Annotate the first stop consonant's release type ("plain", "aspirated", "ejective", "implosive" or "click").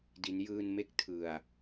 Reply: plain